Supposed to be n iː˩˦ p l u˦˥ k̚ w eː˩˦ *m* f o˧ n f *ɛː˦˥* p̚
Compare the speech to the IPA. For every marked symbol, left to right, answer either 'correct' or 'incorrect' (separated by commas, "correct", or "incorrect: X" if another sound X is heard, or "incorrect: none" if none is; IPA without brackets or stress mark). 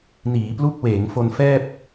incorrect: ŋ, incorrect: ɛː˥˩